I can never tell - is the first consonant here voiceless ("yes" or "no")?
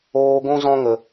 no